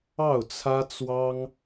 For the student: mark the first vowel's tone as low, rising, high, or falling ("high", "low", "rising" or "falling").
falling